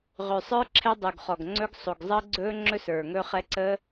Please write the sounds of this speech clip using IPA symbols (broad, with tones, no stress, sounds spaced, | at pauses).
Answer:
ʁ ø˨˩ sˤ ə˞˦˥ ǁʰ ɛ˦˥ dˤ u˨˩ ɡ χ ɔ˨˩ ɡ ŋ͡ǀ ɵ˦˥ ɡ sˤ o˨˩ ɡ zˤ əː˦˥ ɡ͡ǀ ɵː˦˥ ŋ͡ǁ ɵ˦˥ s ə˞˨˩ ŋ ɵ˦˥ χ ɛ˦˥ ǀ ə˦˥